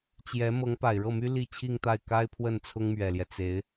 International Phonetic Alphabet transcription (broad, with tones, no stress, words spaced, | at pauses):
t͡ɕjɛ˧˥ mɤ˧˥ŋpa˨˩ɪ̯ɻɤ˥˩my˥ li˥˧t͡ɕʰi˥˧ŋt̪a˥˩ɪ̯ ka˥ɪ̯ pʰwə˥˩nt͡sʰʊ˥ŋmɥɛ˨˩ljɛ˦ t͡se˧˥ɪ̯